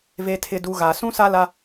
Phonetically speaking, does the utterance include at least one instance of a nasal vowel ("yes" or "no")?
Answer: yes